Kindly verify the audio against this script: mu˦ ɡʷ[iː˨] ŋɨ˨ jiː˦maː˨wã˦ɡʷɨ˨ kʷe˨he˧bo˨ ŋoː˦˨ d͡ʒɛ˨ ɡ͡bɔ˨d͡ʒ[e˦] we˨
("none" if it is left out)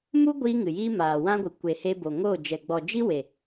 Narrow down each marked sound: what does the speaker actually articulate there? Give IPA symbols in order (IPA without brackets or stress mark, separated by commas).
iː˧, i˦